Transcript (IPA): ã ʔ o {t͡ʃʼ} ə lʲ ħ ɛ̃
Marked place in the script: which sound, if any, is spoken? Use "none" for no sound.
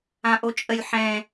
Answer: t͡ʃʼ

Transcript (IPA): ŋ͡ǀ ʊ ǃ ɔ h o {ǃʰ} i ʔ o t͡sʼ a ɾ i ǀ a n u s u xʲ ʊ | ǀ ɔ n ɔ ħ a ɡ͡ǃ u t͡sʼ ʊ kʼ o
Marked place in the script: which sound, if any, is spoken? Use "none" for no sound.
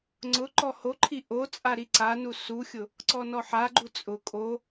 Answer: ǃʰ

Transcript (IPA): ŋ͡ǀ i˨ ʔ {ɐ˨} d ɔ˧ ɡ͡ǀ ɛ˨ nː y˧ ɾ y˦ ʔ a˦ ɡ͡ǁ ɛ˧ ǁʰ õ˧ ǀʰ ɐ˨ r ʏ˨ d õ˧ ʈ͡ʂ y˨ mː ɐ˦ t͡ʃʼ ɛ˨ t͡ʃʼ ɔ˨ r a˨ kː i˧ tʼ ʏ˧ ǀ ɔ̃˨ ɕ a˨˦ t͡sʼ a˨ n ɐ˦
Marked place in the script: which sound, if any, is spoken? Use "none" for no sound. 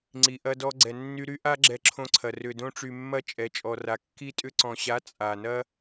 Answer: ɐ˧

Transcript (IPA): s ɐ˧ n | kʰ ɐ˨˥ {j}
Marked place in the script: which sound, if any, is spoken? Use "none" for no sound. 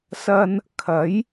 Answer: j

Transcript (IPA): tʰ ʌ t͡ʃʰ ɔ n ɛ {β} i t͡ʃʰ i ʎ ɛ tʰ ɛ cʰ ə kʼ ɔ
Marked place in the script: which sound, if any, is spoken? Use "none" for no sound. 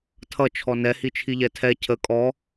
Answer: h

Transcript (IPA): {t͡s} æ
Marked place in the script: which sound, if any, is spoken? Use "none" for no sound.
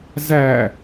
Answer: z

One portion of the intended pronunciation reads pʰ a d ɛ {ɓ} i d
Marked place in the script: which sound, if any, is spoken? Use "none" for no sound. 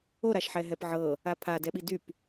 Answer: ɓ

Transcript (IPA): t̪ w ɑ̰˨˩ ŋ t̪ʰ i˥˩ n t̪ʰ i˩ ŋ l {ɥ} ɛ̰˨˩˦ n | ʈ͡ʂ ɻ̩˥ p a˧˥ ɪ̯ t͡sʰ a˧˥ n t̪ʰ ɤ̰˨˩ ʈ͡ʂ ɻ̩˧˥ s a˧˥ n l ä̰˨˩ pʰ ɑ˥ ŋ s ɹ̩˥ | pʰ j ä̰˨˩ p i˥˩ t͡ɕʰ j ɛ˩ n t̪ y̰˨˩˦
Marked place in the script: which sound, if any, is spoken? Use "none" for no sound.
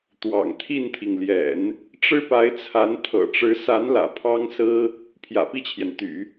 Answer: j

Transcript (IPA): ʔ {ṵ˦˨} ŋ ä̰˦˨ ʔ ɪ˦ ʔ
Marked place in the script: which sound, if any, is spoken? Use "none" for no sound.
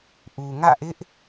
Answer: u˨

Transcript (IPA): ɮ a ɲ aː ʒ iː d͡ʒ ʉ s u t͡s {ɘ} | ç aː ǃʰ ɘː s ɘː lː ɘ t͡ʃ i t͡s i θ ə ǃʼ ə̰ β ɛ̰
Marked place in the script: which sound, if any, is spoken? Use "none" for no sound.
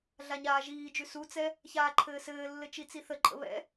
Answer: ɛ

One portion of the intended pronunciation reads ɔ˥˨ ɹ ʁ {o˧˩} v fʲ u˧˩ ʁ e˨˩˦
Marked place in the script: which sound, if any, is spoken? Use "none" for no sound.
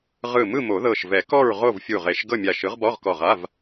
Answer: o˥˨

